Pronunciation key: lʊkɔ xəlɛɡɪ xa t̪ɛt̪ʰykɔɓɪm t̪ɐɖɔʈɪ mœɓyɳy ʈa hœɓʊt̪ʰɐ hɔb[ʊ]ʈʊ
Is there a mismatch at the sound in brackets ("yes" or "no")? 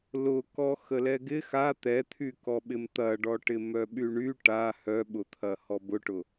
no